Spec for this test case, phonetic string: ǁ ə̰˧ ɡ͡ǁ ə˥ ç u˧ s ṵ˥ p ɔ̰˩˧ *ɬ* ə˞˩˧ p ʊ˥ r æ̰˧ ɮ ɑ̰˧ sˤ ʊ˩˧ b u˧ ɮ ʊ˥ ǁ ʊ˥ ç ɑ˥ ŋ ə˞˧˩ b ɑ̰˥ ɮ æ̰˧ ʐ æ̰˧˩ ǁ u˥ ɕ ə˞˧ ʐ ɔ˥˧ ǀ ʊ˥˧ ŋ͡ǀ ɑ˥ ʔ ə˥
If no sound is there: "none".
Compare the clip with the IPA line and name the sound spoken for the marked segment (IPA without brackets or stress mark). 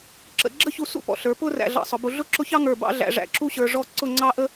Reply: ɬ